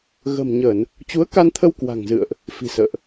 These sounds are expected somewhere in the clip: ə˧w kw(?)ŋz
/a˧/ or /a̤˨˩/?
a̤˨˩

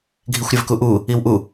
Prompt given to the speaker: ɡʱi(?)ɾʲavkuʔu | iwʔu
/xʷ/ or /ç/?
xʷ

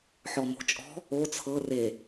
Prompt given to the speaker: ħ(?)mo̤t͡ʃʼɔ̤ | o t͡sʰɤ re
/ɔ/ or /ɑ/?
ɔ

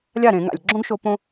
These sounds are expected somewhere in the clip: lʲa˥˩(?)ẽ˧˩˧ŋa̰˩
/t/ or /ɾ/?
ɾ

